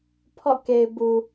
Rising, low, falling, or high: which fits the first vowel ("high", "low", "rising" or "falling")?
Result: falling